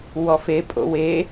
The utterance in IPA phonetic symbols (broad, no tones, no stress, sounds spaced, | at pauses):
w ɔ f e pʼ o̰ w e